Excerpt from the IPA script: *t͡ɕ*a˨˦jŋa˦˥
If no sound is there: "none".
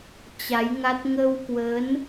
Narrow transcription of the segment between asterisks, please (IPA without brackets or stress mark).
t͡ɕ